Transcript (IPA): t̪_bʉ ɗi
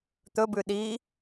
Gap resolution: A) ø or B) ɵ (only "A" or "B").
B